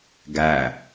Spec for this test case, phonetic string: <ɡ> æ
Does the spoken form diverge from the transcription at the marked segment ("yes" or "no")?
no